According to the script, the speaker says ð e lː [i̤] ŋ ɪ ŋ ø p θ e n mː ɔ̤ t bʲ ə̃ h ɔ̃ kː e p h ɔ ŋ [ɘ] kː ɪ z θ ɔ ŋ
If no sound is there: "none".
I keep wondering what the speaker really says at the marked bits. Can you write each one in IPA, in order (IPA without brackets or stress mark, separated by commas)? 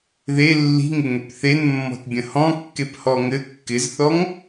i̤, ɘ